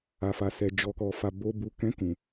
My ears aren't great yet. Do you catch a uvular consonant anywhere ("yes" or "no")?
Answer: no